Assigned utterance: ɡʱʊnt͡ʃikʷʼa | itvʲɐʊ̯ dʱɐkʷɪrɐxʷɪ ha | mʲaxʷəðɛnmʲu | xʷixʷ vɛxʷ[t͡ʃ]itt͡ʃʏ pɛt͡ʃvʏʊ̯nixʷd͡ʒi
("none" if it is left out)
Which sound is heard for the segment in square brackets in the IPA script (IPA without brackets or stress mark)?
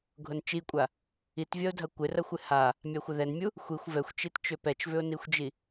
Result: t͡ʃ